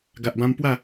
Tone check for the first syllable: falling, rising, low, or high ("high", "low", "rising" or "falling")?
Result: low